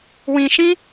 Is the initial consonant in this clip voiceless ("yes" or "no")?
no